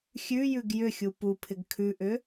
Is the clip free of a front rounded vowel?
no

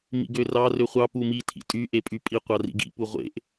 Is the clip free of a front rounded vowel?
no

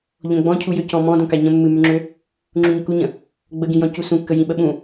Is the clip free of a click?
no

